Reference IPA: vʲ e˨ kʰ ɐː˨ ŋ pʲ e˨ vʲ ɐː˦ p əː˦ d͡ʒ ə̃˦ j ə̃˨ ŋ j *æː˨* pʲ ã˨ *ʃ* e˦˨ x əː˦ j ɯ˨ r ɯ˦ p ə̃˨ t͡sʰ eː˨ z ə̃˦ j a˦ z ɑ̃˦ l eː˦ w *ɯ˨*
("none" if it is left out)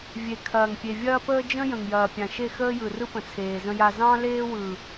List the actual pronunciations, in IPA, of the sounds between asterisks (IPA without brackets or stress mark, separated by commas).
ɐː˨, ʃ, ɯ˨